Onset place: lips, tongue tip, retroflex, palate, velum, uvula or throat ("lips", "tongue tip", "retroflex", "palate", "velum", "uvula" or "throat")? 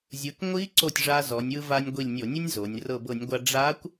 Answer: tongue tip